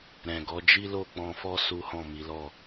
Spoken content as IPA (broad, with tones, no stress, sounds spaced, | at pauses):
ɾ ɛ̃˨ ɡ ɔ˨˦ d͡ʒ i˦ l o˦˨ k͡p ɔ̃˧ f ɔ˦ s u˦ h ɔ̃˦˨ m i˨˦ l ɔ˦˨